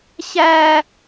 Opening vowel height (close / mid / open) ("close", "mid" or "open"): open